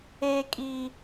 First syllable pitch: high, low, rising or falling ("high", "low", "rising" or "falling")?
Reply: high